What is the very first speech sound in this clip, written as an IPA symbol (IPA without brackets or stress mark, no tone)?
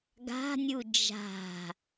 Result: ɡ